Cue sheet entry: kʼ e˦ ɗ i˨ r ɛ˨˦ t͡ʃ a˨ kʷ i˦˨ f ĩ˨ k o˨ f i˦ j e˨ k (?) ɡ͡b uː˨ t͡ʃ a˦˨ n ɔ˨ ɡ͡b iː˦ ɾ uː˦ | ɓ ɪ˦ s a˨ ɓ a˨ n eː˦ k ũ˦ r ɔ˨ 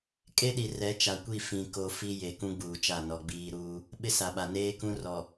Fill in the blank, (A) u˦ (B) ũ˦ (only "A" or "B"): B